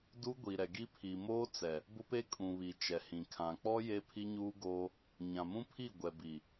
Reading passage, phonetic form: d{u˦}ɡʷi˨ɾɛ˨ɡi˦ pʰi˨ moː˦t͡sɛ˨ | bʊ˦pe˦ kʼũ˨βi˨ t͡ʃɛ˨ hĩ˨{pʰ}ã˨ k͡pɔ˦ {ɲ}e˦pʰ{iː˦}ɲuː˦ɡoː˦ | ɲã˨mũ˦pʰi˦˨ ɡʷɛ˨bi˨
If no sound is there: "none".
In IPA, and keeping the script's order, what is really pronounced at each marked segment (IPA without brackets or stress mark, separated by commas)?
u˦, kʰ, j, i˦